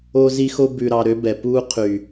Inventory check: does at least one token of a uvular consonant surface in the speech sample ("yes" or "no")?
yes